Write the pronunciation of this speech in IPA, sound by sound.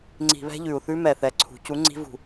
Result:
ŋ͡ǀ i̤˧˩˧ β ɛ̤˦˥ ʎ ʉ˨˩ u̯ θ ʉ˦˥ m ɛ˨˩ θ ɛ˩˧ ǀʰ ṳ˩˧ c u˨˥ ŋ͡ǀ i̤˦˥ v ṳ˧˩˧

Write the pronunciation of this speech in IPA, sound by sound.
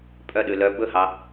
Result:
pʼ œ ɗ ʉ l œ b ɵ h ɑ

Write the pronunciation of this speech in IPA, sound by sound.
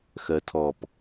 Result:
x ɜ tʰ ɔ p

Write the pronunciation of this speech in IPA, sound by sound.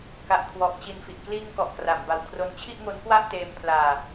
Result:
k a˨˩ ʔ kʰ w ɔ˨˩ ʔ t͡ɕ i˨˩ n f i˨˩ ʔ k l iː˧ ŋ k ɔ˨˩ ʔ k r a˩˦ m b a˨˩ w kʰ r o˦˥ n t͡ɕʰ i˥˩ ʔ ŋ o˦˥ n k w a˥˩ ʔ t eː˧ m pʰ l aː˧

